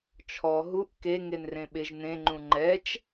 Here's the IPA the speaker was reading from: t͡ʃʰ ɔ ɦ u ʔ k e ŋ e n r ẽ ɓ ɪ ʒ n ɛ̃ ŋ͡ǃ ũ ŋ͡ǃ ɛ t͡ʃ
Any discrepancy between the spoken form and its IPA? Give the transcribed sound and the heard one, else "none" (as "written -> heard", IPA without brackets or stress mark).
ɛ̃ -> ẽ